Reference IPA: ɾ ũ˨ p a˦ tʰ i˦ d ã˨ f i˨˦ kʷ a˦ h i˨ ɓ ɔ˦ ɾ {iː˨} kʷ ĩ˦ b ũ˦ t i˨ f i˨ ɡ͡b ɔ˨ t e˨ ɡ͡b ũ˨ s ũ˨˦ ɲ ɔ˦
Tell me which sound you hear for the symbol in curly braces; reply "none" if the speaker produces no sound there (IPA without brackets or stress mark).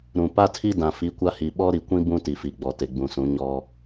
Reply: i˨